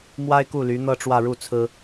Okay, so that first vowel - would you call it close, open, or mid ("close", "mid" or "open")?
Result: open